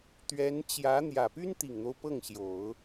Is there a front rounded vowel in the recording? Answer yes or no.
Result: yes